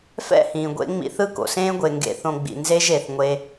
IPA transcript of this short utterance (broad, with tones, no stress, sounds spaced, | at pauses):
f ɛ̰˦˨ h ĩː˨ ɡʷ ḛ˧ ŋ͡m ḭ˧ θ ɯ˦ k o̰˨ s ẽː˦ ɡʷ e˨ ŋ ɡ ḛ˨ θ õ˨ ɡ͡b ḭ˨ n z e˧ ʒ e˨ θ ŋʷ e˧